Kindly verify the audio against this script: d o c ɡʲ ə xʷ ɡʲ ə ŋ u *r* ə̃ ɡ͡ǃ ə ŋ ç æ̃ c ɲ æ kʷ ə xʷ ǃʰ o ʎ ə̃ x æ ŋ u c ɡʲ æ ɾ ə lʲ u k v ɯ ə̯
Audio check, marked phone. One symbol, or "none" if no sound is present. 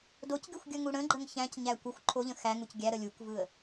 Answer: ɽ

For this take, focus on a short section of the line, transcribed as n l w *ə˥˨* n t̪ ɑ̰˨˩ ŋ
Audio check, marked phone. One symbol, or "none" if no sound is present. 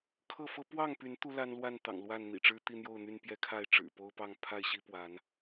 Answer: a˥˨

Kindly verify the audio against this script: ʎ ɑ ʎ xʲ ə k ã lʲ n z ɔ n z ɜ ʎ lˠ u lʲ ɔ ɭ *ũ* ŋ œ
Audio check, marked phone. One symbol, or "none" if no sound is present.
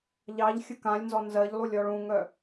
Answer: ũ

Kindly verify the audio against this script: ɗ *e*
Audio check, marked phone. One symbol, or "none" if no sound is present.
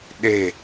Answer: e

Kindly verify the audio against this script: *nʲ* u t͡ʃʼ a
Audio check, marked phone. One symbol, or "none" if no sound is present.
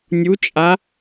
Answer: nʲ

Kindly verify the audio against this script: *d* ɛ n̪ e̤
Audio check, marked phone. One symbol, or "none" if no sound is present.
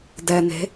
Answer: d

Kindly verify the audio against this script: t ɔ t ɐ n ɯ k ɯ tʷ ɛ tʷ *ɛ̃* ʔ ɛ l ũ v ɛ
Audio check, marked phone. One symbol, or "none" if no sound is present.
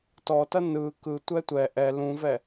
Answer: ɛ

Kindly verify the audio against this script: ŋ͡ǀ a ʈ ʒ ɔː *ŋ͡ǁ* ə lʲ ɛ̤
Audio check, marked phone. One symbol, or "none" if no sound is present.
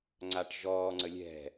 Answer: ŋ͡ǀ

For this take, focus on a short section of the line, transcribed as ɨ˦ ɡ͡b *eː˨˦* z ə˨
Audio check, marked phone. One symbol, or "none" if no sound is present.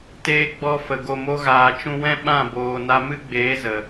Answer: eː˨˦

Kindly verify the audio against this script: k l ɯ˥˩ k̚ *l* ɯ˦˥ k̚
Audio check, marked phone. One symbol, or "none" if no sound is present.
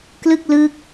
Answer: l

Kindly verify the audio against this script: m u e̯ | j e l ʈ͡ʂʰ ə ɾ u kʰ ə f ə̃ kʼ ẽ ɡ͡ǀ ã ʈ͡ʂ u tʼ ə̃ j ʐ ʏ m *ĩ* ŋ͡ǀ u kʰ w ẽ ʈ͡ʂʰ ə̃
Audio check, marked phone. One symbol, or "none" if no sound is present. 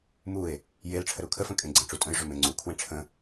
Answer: ẽ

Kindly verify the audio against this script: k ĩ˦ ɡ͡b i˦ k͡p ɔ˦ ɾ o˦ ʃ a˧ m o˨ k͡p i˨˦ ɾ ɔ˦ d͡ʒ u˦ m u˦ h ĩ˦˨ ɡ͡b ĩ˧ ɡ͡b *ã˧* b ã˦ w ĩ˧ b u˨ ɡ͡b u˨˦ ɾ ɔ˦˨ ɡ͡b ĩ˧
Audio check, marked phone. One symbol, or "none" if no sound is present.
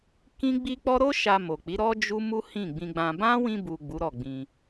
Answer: ã˧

